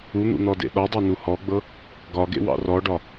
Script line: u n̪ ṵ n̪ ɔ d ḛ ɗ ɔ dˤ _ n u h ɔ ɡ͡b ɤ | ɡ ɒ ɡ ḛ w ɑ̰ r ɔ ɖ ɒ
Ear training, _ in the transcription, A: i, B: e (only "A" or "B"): B